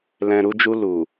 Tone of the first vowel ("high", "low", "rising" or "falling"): low